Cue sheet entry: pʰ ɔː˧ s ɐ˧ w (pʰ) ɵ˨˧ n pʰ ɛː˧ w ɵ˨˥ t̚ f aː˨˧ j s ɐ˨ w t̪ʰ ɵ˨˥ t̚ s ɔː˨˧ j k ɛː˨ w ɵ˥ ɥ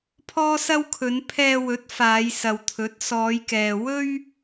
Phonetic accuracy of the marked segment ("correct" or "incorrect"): incorrect